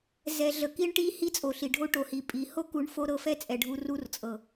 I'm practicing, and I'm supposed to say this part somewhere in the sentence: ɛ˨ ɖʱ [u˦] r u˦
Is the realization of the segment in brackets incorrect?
yes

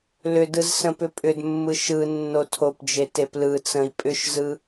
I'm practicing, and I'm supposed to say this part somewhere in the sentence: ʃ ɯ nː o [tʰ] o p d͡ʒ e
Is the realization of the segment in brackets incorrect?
no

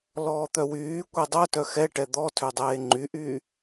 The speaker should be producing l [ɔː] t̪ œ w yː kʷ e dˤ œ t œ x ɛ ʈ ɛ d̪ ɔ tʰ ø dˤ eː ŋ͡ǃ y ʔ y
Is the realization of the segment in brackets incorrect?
no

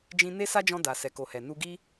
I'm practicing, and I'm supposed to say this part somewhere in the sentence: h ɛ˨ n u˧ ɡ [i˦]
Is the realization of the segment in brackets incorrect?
no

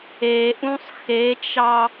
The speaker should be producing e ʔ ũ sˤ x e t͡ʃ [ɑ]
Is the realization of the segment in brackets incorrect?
no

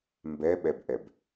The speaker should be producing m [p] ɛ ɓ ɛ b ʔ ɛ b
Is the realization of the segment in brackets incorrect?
yes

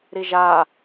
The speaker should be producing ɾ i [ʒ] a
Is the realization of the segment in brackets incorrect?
no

